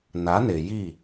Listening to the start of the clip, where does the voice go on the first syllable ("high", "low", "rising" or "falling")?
rising